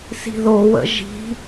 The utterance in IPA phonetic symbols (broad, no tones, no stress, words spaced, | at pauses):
si̤ðo wə̰ʒi̤